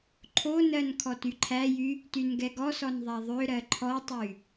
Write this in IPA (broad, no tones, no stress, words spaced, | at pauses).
ǃʰonɜn kʰɔtyǃʰæjy | tynɡɛɡɔsɔn ðˤæðˤøɾɜ ǃʰɔtˤy